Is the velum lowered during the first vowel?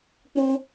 yes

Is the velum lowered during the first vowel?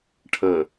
yes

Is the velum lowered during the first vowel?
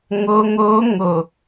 no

